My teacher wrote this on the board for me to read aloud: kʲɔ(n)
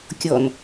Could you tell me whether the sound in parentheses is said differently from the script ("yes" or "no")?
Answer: no